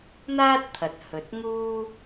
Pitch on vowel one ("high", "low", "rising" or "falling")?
high